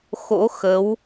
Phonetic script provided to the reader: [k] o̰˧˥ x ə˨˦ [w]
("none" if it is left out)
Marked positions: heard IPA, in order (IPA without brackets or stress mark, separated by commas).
x, w